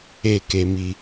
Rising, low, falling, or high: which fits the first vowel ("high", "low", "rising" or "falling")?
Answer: low